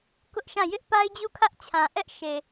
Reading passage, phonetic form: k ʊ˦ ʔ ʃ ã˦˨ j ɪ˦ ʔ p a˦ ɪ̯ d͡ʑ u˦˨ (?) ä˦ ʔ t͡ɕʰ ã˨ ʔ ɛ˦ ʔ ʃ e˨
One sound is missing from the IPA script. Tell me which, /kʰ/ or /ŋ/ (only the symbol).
kʰ